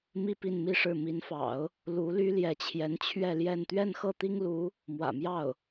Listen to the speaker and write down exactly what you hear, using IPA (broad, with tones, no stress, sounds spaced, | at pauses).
m i˥˧ p i˥˧ n m i˥˧ ʂ ɻ̩˥˩ m i˧˥ n f ɑ̰˨˩˦ ʊ̯ | l u˧˥ l y˥ l j ɛ˧˥ t͡ɕʰ j ɛ˧˥ n t͡ɕʰ ɥ ɛ˥˧ l j ɛ˥˧ n t̪ ɥ ɛ˥˧ n x ɤ˥˩ t̪ i˥ ŋ l u˧˥ | m w ä̰˨˩ m j ɑ˥˩ ʊ̯